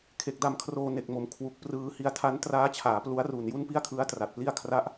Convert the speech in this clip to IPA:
kʰe˨˩k̚da˧mkʰroː˧ ne˨˩k̚mo˨˩m kʰwu˨˩k̚prɯː˧ hi˧a̯ tʰa˦˥ntraː˦˥t͡ɕʰaː˩˦ plu˦˥a̯ ru˨˩nju˥˩npi˥˩a̯kʰɯ˦˥a̯ tra˨˩t̚pli˥˩a̯ kʰra˦˥ʔ

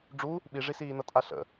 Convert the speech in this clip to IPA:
ɖ͡ʐu | ɓiʐisiːnʌ tʼaɬə̰

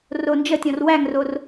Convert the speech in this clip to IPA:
rond͡ʒətʲɔ̃r wæŋror

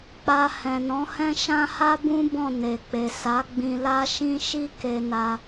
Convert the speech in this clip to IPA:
k͡pa˧hɛ̃˨nɔ̃˨˦hɛ̃˦ ʃã˦ha˦bũ˦ bɔ̃˦˨ne˨k͡pe˨ sa˨˦ ɡ͡bĩ˧la˦ ʃĩ˦ʃi˦ ke˧na˧

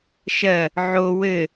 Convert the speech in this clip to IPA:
ʃɜ | ʕo wɘ

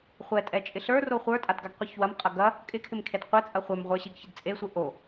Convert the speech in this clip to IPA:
χʷɛtʼɛt͡ʃʼɪ ɬə˞ roχʷə˞tʼadɡaɡ qʷiçwɐm qʼɐɡɐ | kʼɪkʰɪm kʰedqʷɛt͡sʼɐ χʷɛmʁʷə˞ɕiɡ çɪdt͡sʼesʷɪ ʔo

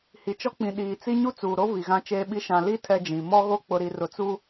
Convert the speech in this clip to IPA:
hi˨t͡ʃɔ˦k͡pĩ˨ ɗiː˨t͡si˦ ɲu˦t͡suː˨ɾo˦ vi˨ɣã˦t͡ʃeː˦ɓi˦ ʃã˨ li˦ tʰɛ˦d͡ʒĩ˨ mɔ˦ɣo˦ k͡pʊ˨ɾi˨ rʊ˨t͡su˦

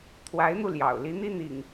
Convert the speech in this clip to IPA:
t̪ʰwa˨˦ɪ̯n̪u˧ ljɑ̰˨˩ʊ̯li˨˦n̪i˦ n̪ḭ˨˩ŋ

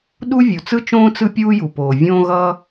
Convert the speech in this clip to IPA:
ɗu˥vʲu˩t͡sɯ˥t͡ʃõː˥ t͡sɯ˥pʲuː˥ju˩poː˩ vʲõː˥ɣʌː˥

